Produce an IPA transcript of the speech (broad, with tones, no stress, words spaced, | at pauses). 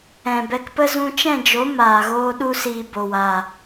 ɛ̃˨bɛ˧kpə˦ zũ˧t͡ʃɛ̃˦˨d͡ʒo˨˦ maː˨ ɣoː˦ɗu˦ siː˧bo˨waː˨